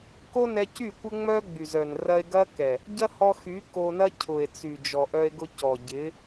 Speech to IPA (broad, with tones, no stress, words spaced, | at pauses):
ko˦nɛ˧cy˦˨ kʷɪ˦ŋ͡mœ˦ ɡ͡by˨zœ˨n rɐ˧e̯ ɡɐ˦kɛ˨ | ɟɐ˦hɔ˧xy˨˦ ko˧nɐ˦ cʰʊ˨e̯t͡sy˨ d͡ʒɔ˨ʔœ˧e̯ɡʊ˧cɔ˨ ɟɪ˨˦